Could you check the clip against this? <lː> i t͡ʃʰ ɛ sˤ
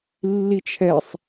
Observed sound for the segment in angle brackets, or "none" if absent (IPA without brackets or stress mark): lː